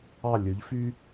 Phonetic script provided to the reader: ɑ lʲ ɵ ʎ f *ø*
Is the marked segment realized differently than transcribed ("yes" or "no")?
yes